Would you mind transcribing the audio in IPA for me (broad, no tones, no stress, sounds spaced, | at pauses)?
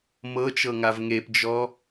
m ɤ t͡ʃ ɤ ŋ a v ŋ e p d͡ʒ ɔ